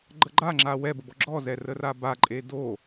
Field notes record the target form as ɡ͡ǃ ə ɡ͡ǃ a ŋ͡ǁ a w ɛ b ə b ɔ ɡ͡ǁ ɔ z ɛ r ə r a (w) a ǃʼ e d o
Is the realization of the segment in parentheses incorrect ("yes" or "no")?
yes